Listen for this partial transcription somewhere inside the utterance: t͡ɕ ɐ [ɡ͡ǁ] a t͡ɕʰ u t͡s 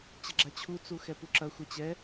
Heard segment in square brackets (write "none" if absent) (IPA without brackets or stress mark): ɡ͡ǁ